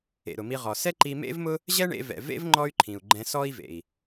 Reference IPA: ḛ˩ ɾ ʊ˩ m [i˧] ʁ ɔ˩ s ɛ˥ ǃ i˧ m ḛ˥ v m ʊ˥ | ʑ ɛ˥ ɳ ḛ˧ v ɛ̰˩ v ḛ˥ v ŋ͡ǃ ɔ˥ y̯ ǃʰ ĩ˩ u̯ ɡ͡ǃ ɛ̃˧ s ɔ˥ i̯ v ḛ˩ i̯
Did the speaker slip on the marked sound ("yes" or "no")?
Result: no